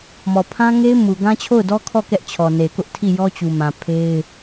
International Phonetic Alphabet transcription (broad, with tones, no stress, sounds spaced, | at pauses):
m ɔ˨ pʰ ã˦ ŋ e˦ ɪ̯ m u˨ ɡ ã˦ t͡ɕʰ o˦˨ ʊ̯ d ɔ˦ kʰ ɔ˦˨ k ɛ˦ ʔ t͡ɕʰ ɔ˨ n e˨ k ʊ˦ ʔ tʰ i˦˨ j ɔ˦ t͡ɕ u˨ m ã˨ pʰ e˦ ɪ̯